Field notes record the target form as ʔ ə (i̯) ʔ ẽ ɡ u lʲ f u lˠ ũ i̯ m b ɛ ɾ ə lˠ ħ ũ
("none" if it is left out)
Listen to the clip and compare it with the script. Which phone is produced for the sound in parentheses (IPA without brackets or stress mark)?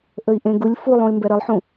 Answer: i̯